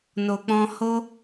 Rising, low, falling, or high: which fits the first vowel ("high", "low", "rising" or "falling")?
low